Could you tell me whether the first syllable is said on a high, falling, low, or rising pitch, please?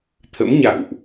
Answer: rising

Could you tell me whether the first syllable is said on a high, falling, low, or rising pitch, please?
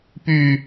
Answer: falling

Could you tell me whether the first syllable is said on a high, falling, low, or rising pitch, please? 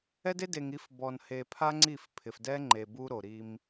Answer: high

